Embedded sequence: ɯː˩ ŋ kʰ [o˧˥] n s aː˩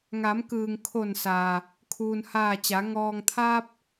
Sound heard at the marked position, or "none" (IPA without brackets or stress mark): o˧˩